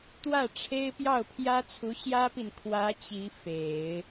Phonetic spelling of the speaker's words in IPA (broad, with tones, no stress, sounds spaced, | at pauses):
t̪ w ä˥˩ ʈ͡ʂʰ e˥ ɪ̯ p j ɑ˥˩ ʊ̯ pʰ j ä˥ t͡sʰ u˧˥ ɕ j ä˥ p i˨ n kʰ w ä˧˥ t͡ɕ i˧˥ f e˨˩˦ ɪ̯